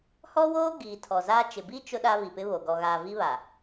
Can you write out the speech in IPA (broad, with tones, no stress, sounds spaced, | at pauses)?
h ɔ˦ w oː˦ ɡ iː˨ tʰ ɔ˨ z aː˦ t͡ʃ ɪ˨ b i˦ t͡ʃ ʊ˦ ɗ a˦ β i˨ p ɪ˦ β o˨ ɡ ɔ˨ ɣ aː˨ v i˦ β a˨